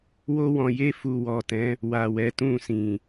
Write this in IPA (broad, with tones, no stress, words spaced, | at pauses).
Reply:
wo˧wɔ̃˨ je˧fu˨ wɔ˨tɛ̃˨˦ | wa˨wɛ˨˦tũ˦˨sĩ˨